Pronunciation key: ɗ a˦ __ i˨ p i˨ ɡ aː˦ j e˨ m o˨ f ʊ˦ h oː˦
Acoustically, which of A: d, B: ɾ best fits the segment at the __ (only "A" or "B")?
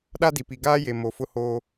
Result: A